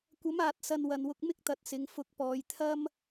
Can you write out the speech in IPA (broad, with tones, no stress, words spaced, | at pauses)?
kʷɐ˨˥maː˨t̚sɐ˨n wɐ˨nwʊ˧k̚ mɪ˥k̚t̪ɐ˨˥t̚ sɪ˨˧ŋfʊ˧k̚ pɔː˨jt̪ʰɐ˥m